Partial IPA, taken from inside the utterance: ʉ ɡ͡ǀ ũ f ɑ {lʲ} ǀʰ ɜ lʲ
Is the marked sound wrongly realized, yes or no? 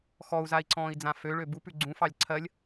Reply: no